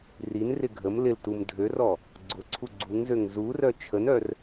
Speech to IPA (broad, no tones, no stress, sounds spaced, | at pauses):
r i n r ɪ ɡʱ ə m l ɪ l t u m dʱ ø r ɔ | ɡ͡ǀ ʊ ǀʰ u ɡ͡ǀ u ŋ z ø ŋ z u r œ t͡ʃʰ ə n œ r